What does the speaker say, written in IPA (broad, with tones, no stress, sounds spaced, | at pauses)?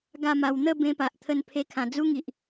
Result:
ɡ a˥˧ m a˧ w n̪ ə˥˧ b ẽ˧ p a˨ ʔ t̪ʰ ə˧ n pʰ e˧ kʰ ã˨˩ d͡z u˦ ŋ i˨ ʔ